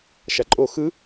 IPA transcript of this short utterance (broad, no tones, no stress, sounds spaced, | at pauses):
ʃ a ǃʼ o x ɯ